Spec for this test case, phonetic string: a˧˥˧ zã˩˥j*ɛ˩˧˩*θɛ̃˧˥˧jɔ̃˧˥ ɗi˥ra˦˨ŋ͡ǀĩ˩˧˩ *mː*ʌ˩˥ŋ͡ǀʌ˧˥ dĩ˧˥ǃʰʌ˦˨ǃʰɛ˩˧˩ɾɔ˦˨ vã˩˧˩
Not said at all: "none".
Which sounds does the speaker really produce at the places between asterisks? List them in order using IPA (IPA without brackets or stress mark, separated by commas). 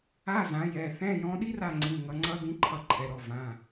ɛ˩˧˩, ŋ